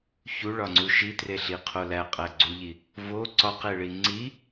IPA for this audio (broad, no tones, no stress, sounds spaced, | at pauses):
ç u ɭ ɒ ŋ͡ǀ u ʃ i t r e ɬ i qʰ o l æ qʼ æ ɡ͡ǀ u ʎ i | v o ǀ ɒ q e ɭ i ŋ͡ǀ i